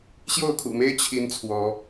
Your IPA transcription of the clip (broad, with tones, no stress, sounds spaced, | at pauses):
ɕ j o˥˨ ʊ̯ kʰ ṵ˨˩ m e˦ ɪ̯ t͡ɕʰ i˦ n t͡sʰ w ɔ˨˦